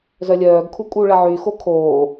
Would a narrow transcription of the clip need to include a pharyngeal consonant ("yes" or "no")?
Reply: yes